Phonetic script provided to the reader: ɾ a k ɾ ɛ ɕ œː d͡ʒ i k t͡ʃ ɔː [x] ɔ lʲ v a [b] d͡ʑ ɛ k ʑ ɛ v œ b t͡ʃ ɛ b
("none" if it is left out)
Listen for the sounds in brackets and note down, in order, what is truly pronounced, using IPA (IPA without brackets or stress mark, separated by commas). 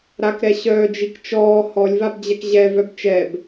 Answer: h, b